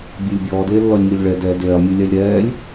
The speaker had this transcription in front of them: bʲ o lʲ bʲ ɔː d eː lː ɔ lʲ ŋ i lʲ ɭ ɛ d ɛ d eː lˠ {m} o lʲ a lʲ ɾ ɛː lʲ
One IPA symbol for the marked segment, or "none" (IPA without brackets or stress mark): mʲ